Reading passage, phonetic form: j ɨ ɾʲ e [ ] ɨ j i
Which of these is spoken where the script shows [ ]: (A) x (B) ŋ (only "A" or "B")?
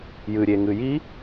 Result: B